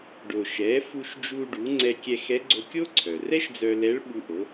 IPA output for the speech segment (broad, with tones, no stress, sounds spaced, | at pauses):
ɖ o˩ ʃ ɛ˩˧ f u˧ ʃ d͡ʒ u˧ ɖ u˩˧ ŋ͡ǀ ɛ˧ kʲ ɛ˧ x ɛ˧˥ ɡ͡ǀ o˧ kʲ o˥ ǀʰ œ˩ r ɛ˥ ʃ d͡z œ˧ l ɛ˧˥ ɭ ɓ u˧ ʔ o˩˧